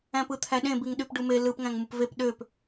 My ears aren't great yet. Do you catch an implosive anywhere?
yes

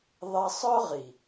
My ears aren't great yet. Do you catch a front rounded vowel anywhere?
yes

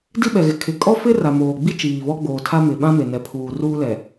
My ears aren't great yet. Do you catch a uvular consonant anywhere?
no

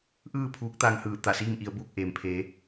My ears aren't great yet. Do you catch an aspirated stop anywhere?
yes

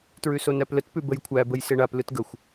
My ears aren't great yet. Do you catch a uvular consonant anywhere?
no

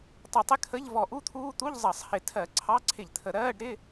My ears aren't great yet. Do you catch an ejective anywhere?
no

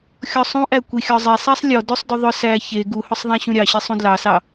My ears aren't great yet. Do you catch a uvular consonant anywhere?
no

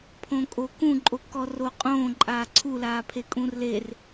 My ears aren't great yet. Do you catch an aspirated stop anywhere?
yes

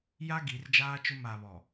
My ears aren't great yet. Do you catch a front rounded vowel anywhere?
no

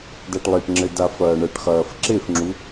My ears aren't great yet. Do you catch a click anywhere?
yes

